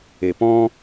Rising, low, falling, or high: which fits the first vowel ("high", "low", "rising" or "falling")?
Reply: low